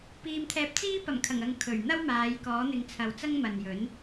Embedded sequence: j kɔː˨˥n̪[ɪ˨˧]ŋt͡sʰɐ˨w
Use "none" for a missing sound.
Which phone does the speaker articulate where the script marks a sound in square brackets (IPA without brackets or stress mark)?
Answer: ɪ˨˧